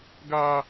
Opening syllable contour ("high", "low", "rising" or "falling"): high